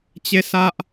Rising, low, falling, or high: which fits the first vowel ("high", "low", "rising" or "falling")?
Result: falling